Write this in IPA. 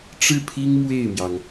ʈ͡ʂ ɻ̩˥˩ pʰ i˥ ŋ m w e˥˩ ɪ̯ m j ɑ˩ ŋ

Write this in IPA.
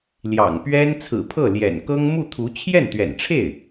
l j ɑ̰˨˩ ŋ p ɥ ɛ˥ n t͡sʰ ɹ̩˨˩ pʰ ɤ˥˩ l j ɛ̰˨˩ n k ɤ˥ ŋ m u˥˩ t̪ʰ u˧˥ t͡ɕʰ j ɛ˥˩ n t̪ ɥ ɛ̰˨˩ n ʈ͡ʂʰ e˥˩ ɪ̯

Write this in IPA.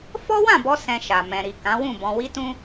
f ɔ˦ w ã˦˨ b ɔ˧ s ɛ̃˧ ʃ a˨ m ɛ̃˨ ɾ i˨ k ã˨˦ w ũ˦˨ b ɔ̃˧ w i˦ t ũ˦

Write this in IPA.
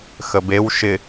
x ə b e w ʃ ɪ

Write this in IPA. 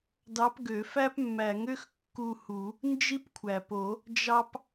d ɑ˧˥ p ɡ ø˨˩˦ f æ˥ p mː æ˨˩˦ ŋ ø˥ x kː u˦˨ h u˨˩˦ | n d͡ʒ i˥ p kʷʰ æ˩ p o˨˩˦ | d͡ʒ ɑ˥ p

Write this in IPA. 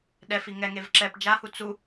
ɗ ɛ f i ŋ ɛ ŋ e v ǁ ɛ p d͡ʒ a h u t͡s u

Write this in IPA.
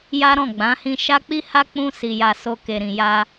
j a˦ ɾ ɔ̃˦˨ ɡ͡b ã˨˦ h ĩ˧ ʃ a˦ k͡p i˦ h a˦ k͡p ũ˧ s i˨ j a˨ s o˨ k e˨ ɾ ĩ˨ j a˧

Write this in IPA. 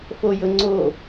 f o j ɵ ŋ͡ǀ o

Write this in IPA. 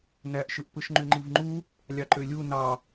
n æ ʔ ʃ ɯ ʔ p ɯ ʃ ŋ͡ǃ y ŋ͡ǃ i v ŋ͡ǃ u | lʲ ɑ ǃ ø lʲ u n ɑ

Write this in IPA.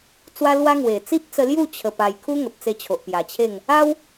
t͡s w a˦ l w a˦ ŋ w e˨˩ t͡s i˦ p̚ t͡s ə˧ l j u˥˧ t͡ɕʰ ə˧ p a˧ j kʰ u˦ ŋ ə˨ p̚ t͡s e˧ t͡ɕʰ o˨ ʔ p j a˨˩ t͡ɕʰ e˥˧ ŋ | a˦ w

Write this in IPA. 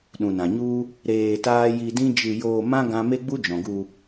ɗ ũ˨ n ã˨ ɲ u˦ | ɾ eː˧ t aː˦ j i˧ d ĩ˦ d͡ʒ ɨ˧ j oː˧ m ã˦ ɡ ã˦ m e˦ ɡ͡b u˦ d͡ʒ ɔ̃˨ ɡ u˧

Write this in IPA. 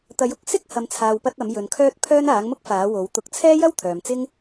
t̪ ɐ˨˥ j ʊ˧ k̚ s ɪ˥ k̚ h ɐ˨ m t͡sʰ aː˨ w p ɐ˧ t̚ ɐ˨˥ m j ɵ˨ n kʰ œː˥ t̚ pʰ œː˥ n aː˨˥ ŋ m ʊ˥ k̚ f aː˨˥ w o˨˥ w t̪ ʊ˨˥ k̚ t͡sʰ ɛː˥ j ɐ˥ w t̪ʰ œː˨ m t͡s ɪ˥ ŋ

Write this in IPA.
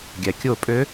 ɡʲ æ kʲ o pʼ ø

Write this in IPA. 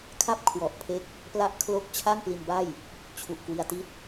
kʰ a˥˩ p̚ kʰ w ɔ˨˩ ʔ pʰ e˦˥ k̚ | p l a˦˥ ʔ kʰ l o˦˥ k̚ t͡ɕʰ a˥˩ ŋ p l i˧ n b a˥˩ j | t͡ɕʰ u˨˩ ʔ k w i˧ a̯ t i˥˩ t̚

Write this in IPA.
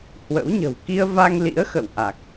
h w ə̰˧˥ w ɲ ə̤˨˩ w k i˧ ə̯ v a˧ ŋ l ḭ˧˥ ə̯ x ə̰˧˨ w ʔ a˨˩ k̚

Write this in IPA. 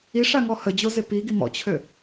i ʂ a ŋ ɔ h ə d͡ʑ o z e p i ɡ i m ɔ̰ t͡ɕʰ ø

